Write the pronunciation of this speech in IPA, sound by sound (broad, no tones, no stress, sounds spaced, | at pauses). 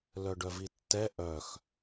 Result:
l œ ɖ œ v i tː ɛ ʔ œ x